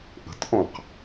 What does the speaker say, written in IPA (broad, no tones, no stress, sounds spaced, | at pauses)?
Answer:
ʔ ə̤ t ʔ ɔ̃ q